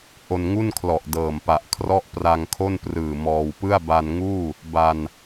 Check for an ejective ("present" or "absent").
absent